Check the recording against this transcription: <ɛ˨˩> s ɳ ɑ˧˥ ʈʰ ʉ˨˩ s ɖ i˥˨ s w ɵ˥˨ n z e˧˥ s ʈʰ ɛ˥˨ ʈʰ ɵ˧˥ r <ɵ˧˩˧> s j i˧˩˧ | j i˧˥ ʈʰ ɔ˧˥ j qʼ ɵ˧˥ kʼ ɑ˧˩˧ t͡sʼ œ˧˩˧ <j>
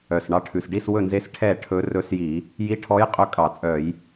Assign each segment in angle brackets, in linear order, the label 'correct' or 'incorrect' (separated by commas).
incorrect, incorrect, correct